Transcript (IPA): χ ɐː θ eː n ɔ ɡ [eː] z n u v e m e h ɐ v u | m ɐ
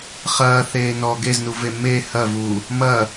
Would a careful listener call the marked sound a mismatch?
yes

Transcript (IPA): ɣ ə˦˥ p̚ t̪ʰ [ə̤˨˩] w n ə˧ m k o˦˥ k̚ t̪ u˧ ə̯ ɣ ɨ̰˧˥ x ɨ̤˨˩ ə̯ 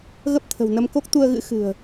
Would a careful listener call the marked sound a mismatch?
no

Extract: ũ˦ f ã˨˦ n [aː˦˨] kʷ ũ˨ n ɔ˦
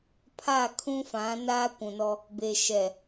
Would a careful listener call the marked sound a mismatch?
yes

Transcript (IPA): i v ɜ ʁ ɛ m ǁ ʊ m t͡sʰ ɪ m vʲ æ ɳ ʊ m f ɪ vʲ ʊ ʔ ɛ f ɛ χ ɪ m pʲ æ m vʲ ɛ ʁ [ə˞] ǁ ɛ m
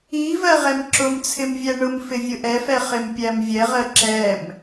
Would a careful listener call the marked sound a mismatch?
yes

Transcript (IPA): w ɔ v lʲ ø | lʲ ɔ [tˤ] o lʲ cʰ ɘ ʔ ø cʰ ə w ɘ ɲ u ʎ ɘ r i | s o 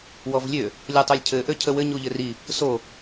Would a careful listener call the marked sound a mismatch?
no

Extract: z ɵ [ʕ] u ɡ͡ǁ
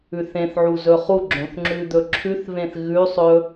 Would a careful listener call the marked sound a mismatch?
yes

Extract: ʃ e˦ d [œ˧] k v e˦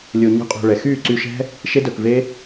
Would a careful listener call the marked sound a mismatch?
no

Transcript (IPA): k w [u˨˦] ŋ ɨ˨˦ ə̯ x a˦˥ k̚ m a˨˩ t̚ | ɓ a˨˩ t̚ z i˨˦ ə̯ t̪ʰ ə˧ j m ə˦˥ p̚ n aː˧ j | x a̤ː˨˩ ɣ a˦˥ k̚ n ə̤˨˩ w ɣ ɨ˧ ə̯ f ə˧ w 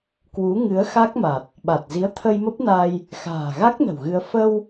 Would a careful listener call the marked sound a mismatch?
no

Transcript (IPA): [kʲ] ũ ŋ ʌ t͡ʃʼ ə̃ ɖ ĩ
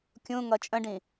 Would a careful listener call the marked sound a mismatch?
no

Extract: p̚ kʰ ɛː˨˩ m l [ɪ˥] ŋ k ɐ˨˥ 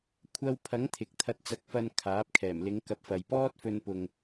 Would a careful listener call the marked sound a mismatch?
yes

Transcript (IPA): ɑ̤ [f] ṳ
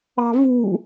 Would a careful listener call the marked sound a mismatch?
yes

